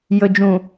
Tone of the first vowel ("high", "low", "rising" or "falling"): low